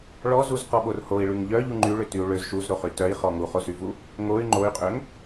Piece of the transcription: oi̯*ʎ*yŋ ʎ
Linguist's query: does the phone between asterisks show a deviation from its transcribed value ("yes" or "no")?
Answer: yes